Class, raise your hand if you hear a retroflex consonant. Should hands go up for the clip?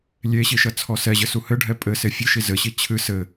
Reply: yes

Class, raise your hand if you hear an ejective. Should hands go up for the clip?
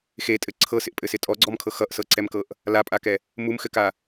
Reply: yes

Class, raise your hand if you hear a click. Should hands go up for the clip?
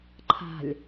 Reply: yes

